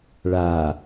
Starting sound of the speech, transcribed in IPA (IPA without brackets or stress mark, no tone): ɭ